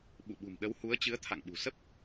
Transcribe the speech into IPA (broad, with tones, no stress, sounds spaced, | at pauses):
ɓ ṵ˧˨ ɓ ṳ˨˩ m ɗ ə˨˦ w h u˨˦ ə̯ t͡ɕ ɨ˨˦ ə̯ t̪ʰ a̰˧˨ ŋ ɓ ṳ˨˩ s ə˦˥ p̚